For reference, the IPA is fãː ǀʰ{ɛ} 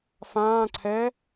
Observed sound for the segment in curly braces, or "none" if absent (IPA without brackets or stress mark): ɛ